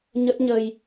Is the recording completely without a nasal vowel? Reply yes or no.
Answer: yes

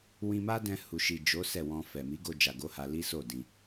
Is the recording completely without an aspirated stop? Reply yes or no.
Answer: yes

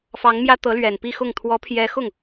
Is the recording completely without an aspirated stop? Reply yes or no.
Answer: no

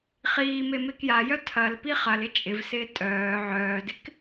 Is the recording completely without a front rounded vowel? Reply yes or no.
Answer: no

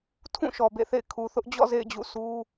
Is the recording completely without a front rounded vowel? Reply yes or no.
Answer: yes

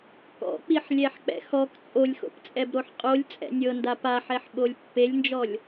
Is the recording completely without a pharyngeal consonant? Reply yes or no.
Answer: no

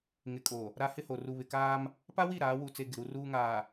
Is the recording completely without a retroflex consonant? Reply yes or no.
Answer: yes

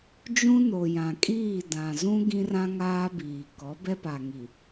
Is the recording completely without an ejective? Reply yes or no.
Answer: no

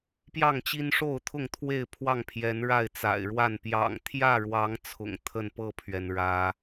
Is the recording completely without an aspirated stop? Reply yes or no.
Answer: no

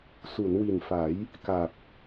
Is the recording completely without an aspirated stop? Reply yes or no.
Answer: yes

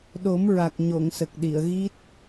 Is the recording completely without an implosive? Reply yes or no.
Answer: no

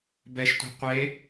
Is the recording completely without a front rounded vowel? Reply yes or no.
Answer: yes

